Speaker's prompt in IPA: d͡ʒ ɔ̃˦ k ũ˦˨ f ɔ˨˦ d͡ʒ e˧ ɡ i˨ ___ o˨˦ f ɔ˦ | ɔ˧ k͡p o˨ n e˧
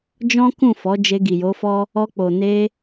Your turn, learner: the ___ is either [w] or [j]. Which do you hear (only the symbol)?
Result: j